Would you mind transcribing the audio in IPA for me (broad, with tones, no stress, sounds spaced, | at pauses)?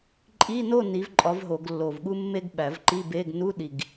ǃʼ i˧˥˧ n o˥˨ n i˨˥ v ǃʼ ɒ˨˥ v ɦ o˨˩˦ ɡ lː o˨˩ v ɠ u˥ mː e˥ ɡ ɓ æ˨˩˦ v ǃ i˧˥˧ b e˧˥˧ ɡ n u˧˥˧ ɗ i˨˩ ɡ